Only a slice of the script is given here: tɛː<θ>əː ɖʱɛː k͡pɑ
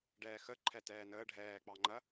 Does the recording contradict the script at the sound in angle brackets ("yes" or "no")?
yes